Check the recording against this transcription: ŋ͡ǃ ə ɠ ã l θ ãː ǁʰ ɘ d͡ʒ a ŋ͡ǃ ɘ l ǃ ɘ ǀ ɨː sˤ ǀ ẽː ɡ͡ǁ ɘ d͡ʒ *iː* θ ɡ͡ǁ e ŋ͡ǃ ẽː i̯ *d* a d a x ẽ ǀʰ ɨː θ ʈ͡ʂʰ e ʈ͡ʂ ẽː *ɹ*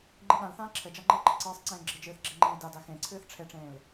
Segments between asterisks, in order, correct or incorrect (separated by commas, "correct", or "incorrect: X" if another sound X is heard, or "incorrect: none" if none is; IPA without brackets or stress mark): incorrect: ɨː, correct, incorrect: l